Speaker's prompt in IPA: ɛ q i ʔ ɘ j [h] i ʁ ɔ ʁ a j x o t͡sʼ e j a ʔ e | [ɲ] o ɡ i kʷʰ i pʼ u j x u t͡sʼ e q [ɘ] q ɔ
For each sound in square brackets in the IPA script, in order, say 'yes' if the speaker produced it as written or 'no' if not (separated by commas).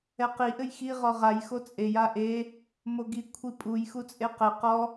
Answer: no, no, yes